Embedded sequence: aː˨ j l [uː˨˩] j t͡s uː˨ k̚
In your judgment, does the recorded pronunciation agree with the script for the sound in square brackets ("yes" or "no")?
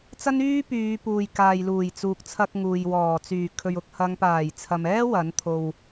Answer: yes